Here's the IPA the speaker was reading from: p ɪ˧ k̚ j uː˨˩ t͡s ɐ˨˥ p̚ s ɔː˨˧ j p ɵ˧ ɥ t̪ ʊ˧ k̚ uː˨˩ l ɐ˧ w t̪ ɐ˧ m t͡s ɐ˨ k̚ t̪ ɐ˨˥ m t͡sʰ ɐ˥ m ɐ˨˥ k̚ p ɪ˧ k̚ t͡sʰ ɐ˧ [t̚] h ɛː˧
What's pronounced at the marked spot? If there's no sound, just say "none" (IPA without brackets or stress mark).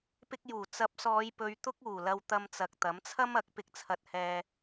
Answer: t̚